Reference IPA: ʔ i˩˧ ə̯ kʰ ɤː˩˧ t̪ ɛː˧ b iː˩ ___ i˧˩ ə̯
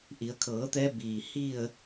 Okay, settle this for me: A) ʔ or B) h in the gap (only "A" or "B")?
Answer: B